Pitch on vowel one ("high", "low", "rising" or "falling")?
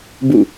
falling